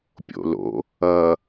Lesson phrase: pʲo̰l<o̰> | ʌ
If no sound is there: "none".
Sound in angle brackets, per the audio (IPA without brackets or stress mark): o̰